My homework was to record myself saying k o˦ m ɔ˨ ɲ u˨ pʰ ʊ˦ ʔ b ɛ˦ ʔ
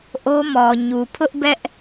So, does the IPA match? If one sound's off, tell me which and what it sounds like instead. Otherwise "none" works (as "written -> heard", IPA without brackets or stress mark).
k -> ʔ